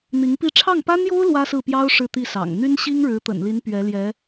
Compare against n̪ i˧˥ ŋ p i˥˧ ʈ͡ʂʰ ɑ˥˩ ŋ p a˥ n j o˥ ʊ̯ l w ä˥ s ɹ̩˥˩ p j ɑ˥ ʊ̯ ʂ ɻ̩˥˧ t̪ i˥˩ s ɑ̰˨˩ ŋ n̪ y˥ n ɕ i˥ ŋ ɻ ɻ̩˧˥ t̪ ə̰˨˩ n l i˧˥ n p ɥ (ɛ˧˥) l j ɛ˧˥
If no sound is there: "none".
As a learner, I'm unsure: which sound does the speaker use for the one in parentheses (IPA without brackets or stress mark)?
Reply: ɛ˧˥